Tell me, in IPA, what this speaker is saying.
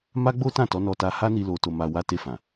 ma˦ɡ͡bo˦tã˦˨ tɔ˨˦nɔ˧ta˧ ha˦ni˧ lo˧to˧ma˧ wa˧te˧fã˨

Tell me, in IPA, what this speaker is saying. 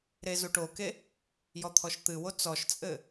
ɾezuʈoke | jɔt̪ʰɔʃt̪ɨwo t͡sɔʃt͡sʼɘ

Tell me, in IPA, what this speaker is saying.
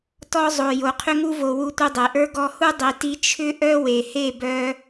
tɔ˧zˤo˨ jo˨qʰʏ˧ŋu˧vo˨ wu˧tʷi˧dˤe˨ʔə˞˦ ɡɔ˧hu˦ dˤi˨ti˧ t͡ʃʰʏ˦ʔœ˦we˨he˦˨ bœ˧

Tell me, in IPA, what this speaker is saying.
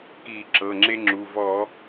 ki˧˩˧ ǁɤ˩˧˩ŋ͡ǁe˦ŋ͡ǁu˩˧˩ vɔ˧˩˧

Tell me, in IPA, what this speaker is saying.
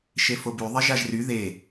ʃefobyðˤe ʒaʒry ðe

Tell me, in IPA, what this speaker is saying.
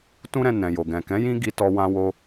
tũ˦ɾɛ̃˧ nɛ̃˨ jo˨ɡɛ̃˨kɛ̃˨˦ jĩ˦ ɡi˧tɔ˧ wã˧wo˧

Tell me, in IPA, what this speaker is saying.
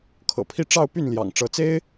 kʰɤ̰˨˩pʰi˥˧ ʈ͡ʂɑ˥˧ʊ̯py˥˩n ljɑ̰˨˩ŋ ʈ͡ʂɤ˧˥ t͡se˥ɪ̯

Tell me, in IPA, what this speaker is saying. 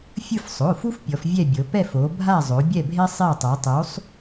fʲɯ˦˨fsˤo˩˧˩fu˦f pʲɔ˩˧fvʲɛ˦˨bʲɤ˩˧ pɛ˦˨fo˩˧ bʱa˦˨zˤo˩˧ bʲɛ˦˨bʱe˦ sˤe˦˨tˤu˩˧tˤu˨˥sˤ

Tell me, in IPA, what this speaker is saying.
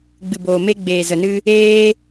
ɡ͡bɨ˨boː˨me˧ ɡ͡beː˨zə˨nɨ˧ | eː˦

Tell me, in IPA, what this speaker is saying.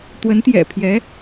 t̪wə˧˥nt̪jɛ̰˨˩pʰjɛ˧˥

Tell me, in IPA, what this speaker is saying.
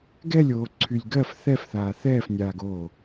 ɡɛlʲoː ǀʰylʲɡɜf θɛfθaː θɛːfnʲaːɡoː

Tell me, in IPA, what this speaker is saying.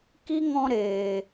ki˦ŋɔ̃˧ɾeː˨

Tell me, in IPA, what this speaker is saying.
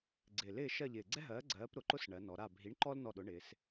ɡ͡ǀɪː˨˩lɪː˦˨ ʃɜ˦˨ʎɪː˨˩ɡ͡ǀɛ˥ɦɜː˨˥ ɡ͡ǀɜː˨˥p ɾʊ˨˩ǃʊ˥s ɳɜ˩˧nɔ˩˧ɾa˦˨ bʱi˨˥ɳǃɔ˥l nɔ˦˨ɗʊ˨˥ɳɪː˩˧s

